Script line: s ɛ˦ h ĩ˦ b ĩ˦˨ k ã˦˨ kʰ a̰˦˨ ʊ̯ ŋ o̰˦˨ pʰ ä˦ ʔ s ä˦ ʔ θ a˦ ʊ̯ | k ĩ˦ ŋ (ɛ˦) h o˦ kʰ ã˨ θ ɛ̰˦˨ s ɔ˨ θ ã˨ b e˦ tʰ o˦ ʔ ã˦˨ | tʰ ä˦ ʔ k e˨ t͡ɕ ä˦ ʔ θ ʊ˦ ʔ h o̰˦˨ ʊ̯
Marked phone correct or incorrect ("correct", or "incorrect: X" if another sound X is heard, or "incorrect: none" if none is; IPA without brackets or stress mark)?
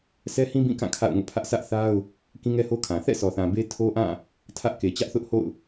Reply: correct